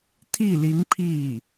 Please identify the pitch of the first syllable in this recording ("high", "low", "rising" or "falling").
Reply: falling